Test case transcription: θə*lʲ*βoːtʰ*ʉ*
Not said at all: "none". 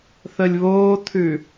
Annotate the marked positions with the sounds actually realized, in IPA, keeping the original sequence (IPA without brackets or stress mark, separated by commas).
lʲ, ʉ